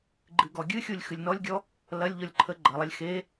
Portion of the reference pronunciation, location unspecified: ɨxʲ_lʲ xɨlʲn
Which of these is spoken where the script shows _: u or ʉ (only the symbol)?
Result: u